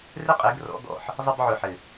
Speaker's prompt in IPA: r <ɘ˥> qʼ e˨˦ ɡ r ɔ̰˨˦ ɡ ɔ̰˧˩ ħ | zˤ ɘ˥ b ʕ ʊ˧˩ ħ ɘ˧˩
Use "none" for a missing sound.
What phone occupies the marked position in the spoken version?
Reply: ɘ˥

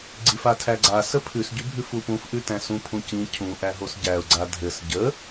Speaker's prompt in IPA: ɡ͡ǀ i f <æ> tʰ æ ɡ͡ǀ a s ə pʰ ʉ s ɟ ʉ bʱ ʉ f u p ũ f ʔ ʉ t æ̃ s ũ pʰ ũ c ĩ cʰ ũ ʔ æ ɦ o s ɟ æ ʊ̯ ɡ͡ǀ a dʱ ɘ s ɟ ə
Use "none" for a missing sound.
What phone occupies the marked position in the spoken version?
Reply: a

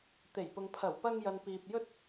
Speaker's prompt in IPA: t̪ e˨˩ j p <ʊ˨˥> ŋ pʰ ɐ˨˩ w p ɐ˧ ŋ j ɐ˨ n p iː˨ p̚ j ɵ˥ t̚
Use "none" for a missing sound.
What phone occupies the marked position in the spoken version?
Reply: ʊ˨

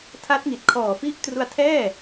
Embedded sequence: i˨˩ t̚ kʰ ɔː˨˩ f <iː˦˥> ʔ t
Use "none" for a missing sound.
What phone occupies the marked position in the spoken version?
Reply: i˦˥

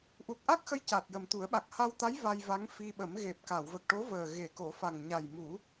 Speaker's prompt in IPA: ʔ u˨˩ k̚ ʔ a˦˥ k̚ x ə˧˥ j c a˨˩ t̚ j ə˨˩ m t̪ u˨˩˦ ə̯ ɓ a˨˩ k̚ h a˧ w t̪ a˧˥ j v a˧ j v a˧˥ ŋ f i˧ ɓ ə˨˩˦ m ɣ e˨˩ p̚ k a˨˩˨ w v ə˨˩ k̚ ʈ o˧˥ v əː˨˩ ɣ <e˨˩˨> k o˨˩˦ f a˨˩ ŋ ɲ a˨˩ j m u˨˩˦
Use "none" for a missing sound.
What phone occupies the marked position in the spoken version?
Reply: e˨˩˨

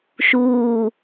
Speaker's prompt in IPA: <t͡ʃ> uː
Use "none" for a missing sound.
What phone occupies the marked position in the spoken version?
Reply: ʃ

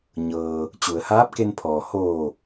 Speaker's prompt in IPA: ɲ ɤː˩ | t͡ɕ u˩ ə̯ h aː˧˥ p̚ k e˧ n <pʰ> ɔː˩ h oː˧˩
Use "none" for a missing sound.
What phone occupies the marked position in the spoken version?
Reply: pʰ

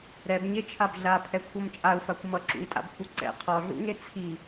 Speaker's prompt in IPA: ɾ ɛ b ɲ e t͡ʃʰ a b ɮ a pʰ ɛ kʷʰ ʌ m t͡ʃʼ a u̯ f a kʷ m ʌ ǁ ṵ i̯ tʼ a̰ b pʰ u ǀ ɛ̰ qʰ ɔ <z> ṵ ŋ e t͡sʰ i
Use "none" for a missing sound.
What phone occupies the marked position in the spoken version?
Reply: ɮ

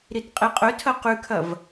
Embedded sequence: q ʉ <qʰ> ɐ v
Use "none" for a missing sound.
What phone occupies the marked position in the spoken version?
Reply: kʰ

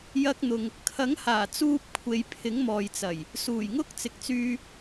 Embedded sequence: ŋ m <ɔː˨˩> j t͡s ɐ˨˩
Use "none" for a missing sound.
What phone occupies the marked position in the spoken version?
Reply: ɔː˨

